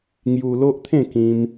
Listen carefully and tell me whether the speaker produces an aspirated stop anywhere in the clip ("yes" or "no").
yes